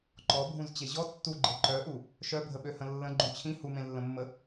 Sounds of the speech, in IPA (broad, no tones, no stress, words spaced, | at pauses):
ǃɔbʱũzt͡ɕe ʑɔ tːuɡ͡ǃe ǃœʔu | ʃœbʱəɓøhə̃ lːə̃ɡ͡ǃũ t͡ɕʰĩ humẽlːə̃mːə